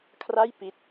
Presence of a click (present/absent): absent